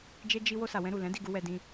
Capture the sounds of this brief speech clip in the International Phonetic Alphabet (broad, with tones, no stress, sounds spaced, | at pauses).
d͡ʒ e˦ d͡ʒ i˦ w o˧ s a˨ w ɛ̃˧ ɾ u˨ l ɛ̃˨˦ d i˦˨ ɡ u˧ w ɛ˧ d ĩ˧